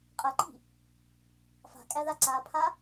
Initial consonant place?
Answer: uvular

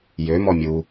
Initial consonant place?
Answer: palatal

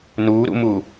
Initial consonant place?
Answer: alveolar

